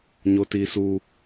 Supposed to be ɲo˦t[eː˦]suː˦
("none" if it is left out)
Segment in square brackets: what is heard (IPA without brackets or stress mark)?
iː˦